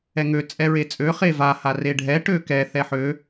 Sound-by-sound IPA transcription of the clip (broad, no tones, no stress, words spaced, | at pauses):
ɛŋø t͡sʼɛɹet͡sʼø χeva hareɖʱɛ ʈøkɛ θɛħø